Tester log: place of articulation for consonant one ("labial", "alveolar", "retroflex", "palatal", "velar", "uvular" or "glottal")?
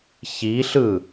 palatal